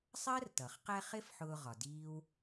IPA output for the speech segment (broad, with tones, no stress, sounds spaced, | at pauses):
sˤ ɜ˥ r t ʌ˩ χ q ɛ˦ χ ɪ˥ f ħ ʊː˦ ʁ ɒ˩ d iː˥ w